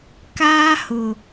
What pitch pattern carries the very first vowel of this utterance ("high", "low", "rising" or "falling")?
high